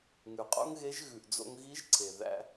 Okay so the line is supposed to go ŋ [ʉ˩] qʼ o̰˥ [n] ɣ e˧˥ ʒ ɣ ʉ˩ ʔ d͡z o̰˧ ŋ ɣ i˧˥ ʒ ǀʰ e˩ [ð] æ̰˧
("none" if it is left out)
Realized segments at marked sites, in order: ʉ˩, ŋ, ð

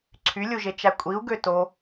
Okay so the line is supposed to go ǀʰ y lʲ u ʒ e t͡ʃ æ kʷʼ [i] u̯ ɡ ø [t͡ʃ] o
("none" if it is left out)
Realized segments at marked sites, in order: i, t

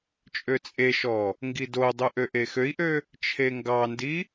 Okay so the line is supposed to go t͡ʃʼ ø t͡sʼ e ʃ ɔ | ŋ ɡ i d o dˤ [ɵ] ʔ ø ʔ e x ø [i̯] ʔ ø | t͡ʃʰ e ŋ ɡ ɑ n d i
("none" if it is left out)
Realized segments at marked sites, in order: ɵ, i̯

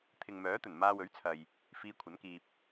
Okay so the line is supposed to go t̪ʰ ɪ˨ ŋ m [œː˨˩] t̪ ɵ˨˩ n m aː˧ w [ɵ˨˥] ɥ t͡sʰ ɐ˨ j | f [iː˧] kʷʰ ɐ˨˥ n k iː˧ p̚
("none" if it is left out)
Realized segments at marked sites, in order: œː˨˥, ɵ˨˥, iː˧

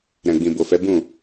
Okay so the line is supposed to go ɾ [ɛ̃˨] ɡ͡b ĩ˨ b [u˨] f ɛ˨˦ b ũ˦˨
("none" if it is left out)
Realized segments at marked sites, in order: ɛ̃˨, o˨

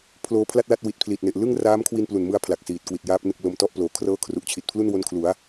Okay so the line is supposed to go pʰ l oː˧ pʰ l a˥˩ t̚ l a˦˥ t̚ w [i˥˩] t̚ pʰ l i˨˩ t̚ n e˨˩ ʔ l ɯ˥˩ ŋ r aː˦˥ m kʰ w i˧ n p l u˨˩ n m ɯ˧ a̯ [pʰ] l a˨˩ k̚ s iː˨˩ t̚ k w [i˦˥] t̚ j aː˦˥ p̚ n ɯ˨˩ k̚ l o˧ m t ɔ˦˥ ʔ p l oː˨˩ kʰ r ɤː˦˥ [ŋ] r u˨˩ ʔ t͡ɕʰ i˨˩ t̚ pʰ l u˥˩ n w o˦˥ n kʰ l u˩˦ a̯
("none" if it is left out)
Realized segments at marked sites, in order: i˨˩, pʰ, i˨˩, kʰ

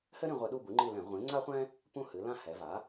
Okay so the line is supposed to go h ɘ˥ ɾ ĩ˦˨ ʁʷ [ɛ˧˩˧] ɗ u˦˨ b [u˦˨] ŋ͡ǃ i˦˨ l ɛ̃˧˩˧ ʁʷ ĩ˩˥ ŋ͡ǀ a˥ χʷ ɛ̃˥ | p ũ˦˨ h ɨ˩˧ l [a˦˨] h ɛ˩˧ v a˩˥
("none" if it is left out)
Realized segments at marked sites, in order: ɘ˧˩˧, u˩˥, ã˦˨

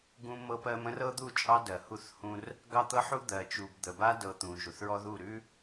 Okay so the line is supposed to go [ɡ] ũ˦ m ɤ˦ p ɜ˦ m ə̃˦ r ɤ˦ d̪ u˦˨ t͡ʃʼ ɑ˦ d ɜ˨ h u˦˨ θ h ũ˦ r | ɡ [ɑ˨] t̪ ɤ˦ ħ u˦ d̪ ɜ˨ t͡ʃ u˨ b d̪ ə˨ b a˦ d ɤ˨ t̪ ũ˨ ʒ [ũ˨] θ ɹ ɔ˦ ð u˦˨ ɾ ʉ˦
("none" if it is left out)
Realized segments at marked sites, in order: ɡ, ɑ˦, u˨

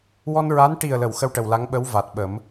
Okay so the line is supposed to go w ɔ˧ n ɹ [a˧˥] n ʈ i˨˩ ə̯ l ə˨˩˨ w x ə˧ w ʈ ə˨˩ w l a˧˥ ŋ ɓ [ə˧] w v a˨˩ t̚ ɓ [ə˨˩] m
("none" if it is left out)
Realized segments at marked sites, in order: a˧˥, ə˧˥, ə˨˩˦

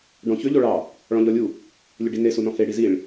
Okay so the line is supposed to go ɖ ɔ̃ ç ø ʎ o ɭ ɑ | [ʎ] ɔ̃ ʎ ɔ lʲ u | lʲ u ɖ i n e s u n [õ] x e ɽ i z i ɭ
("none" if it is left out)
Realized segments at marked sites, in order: ɭ, ɔ̃

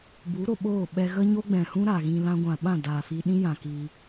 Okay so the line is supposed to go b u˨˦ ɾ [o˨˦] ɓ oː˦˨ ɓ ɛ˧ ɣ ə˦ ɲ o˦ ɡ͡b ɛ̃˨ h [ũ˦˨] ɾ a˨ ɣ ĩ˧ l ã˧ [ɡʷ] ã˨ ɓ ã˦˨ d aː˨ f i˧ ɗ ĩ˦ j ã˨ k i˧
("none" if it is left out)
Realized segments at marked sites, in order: o˨, ũ˦, ɡʷ

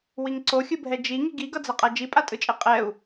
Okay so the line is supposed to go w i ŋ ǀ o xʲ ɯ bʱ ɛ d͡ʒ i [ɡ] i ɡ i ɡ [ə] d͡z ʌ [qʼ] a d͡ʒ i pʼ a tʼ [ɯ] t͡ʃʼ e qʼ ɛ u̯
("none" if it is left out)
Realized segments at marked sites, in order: ŋ, ʌ, qʼ, ɯ

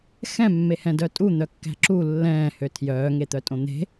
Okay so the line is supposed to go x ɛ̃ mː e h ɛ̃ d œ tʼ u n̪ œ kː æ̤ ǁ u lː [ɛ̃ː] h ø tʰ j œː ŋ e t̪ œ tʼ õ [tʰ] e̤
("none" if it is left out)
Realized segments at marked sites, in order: ɛ̃ː, n̪

